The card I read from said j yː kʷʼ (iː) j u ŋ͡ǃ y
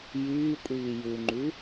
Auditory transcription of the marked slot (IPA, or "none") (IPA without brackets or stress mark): iː